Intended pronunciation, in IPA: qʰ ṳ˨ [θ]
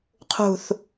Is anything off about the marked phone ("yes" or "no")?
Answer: no